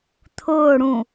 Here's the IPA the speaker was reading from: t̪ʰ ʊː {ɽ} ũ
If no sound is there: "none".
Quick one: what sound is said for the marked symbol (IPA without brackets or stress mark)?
ɽ